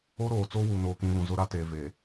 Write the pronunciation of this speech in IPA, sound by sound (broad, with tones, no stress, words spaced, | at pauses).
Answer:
o˦ɾoː˨t͡soː˦ wuː˨noː˨kĩ˨ βũ˨zʊ˦ ɾa˦teː˨ ve˨